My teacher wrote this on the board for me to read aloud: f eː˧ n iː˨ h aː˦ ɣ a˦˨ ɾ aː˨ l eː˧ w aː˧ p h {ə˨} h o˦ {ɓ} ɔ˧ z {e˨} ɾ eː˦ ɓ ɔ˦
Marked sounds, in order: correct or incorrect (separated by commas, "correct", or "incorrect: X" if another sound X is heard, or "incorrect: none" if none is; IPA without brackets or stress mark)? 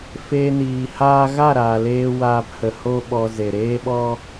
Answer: correct, correct, correct